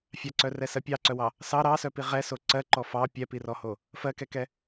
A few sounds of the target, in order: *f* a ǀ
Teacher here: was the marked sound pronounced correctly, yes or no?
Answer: no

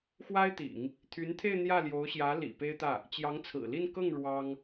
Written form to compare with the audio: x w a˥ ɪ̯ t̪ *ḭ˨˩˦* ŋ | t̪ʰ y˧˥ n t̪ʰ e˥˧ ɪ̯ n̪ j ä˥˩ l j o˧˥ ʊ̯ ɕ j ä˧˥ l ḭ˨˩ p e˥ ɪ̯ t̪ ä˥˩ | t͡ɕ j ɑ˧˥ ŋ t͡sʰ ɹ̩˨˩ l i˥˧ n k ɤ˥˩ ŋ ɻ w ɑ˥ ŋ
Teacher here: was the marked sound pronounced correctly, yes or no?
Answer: yes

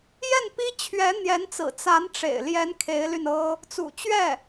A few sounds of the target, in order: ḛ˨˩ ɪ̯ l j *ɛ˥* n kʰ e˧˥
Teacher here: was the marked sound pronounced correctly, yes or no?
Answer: no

